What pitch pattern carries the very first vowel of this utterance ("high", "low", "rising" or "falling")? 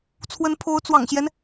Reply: rising